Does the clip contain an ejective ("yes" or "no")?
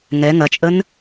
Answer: yes